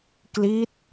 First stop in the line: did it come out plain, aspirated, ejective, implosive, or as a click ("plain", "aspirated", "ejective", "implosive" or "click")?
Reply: plain